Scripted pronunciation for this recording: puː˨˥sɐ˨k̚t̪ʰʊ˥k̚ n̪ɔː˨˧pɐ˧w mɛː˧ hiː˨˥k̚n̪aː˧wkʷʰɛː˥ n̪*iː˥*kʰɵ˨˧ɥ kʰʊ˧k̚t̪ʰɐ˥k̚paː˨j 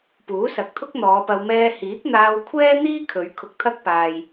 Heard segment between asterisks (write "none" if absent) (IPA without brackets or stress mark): iː˥